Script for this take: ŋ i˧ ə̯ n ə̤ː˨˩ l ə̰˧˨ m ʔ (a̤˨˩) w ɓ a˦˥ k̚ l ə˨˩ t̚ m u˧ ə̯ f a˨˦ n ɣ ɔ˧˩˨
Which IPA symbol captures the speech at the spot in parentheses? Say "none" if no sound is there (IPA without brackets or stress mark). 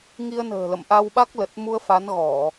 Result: a˧